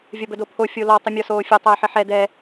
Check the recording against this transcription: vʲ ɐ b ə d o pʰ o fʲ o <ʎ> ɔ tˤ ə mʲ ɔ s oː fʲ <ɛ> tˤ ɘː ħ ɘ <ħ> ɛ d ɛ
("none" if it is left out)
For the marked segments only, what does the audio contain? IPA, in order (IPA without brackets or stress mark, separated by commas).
l, ɘ, ħ